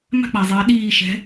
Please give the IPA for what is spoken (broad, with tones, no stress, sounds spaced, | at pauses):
m a̤˥ k͡p a˩ zˤ ɛː˩˧ ɗ iː˧˩ ʃ ɛ̤˩˧